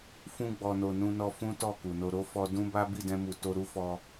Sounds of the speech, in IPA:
fũ˧ɡ͡bɔ˨no˨ nũ˧nɔ˧ fũ˦tɔ˦˨ ku˨no˧ ɾo˦fɔ˧ dũ˦ba˦ bi˦˨dɛ̃˧mu˨ to˧ɾu˦fɔ˧

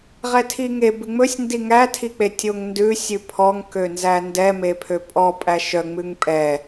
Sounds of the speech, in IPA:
ʁɛtʰiŋe bʉŋ͡mɵsʲndi ŋætʰik͡pe tʲoŋndʉ sʲʉpʰɔŋ kønzændɛ mepʰøpʼɔ pʼæʃœ ŋ͡mʉŋpʼɛ

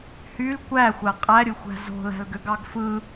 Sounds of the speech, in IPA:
hyl kʷæxʷæ qʼæɾʲɯxʷæ̤ zo̤læ̤lɡøɡɑɡ fɯ

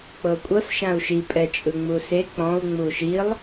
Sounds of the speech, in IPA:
k͡pɤkʷʼɤs ʃãu̯ʃi pʼɛt͡ʃʼɯŋ͡muse k͡pɔ̃u̯ ŋ͡muʃilˠ

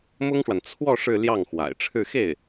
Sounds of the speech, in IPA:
mʊ˥ŋʂwa˨n t͡sʰwɔ˥˧ ʂɻ̩˥˧ljɑ˥˩ŋxwa̰˨˩ɪ̯ʈ͡ʂʰɻ̩˥˧ xe˥˩ɪ̯

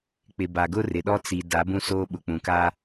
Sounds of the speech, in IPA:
k͡pɪ˨ba˨ ɡʊ˦rɪ˨ɗɔ˦ t͡si˨ da˨˦bũ˦soː˦ɓʊ˨ k͡pũ˨ka˦

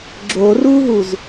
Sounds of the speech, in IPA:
ɡ͡ǁoruɦuz

